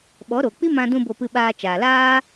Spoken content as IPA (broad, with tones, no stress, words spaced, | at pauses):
ɓɔ˨˦ ɾo˨ k͡pi˦mã˧dũ˧ bo˧pɨ˧ɓaː˧t͡ʃaː˨ laː˦